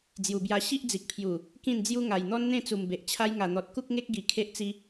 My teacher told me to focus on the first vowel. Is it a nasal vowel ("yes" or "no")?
no